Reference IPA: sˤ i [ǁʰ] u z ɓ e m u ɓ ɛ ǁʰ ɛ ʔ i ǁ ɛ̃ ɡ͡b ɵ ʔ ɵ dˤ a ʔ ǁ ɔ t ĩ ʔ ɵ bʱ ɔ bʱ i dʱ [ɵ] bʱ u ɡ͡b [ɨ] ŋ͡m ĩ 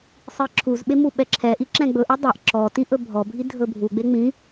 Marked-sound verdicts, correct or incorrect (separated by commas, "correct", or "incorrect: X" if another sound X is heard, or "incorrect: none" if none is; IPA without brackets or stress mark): correct, correct, incorrect: e